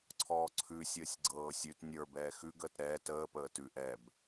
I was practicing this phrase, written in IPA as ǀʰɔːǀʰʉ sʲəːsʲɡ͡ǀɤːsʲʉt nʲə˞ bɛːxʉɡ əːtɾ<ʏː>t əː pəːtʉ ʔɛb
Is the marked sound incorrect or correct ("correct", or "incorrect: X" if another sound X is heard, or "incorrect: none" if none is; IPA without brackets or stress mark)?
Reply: incorrect: ɛː